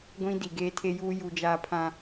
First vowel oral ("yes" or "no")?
no